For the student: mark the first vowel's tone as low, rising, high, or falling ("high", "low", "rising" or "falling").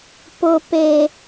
high